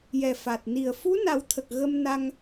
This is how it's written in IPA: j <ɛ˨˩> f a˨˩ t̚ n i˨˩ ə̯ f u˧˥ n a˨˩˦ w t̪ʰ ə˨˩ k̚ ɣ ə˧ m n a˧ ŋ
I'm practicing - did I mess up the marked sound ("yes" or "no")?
no